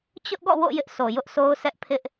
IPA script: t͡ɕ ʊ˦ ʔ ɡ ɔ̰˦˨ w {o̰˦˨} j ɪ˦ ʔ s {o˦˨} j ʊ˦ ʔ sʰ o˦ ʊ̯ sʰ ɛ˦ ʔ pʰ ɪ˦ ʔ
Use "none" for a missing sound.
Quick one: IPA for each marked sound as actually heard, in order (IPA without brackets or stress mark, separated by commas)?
o̰˦˨, o˨